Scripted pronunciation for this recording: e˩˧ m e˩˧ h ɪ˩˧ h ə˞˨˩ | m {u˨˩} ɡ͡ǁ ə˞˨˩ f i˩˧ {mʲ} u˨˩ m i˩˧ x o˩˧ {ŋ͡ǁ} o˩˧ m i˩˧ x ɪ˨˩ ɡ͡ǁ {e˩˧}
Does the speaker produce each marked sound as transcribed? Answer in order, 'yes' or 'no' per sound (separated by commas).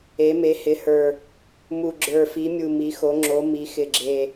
yes, yes, yes, no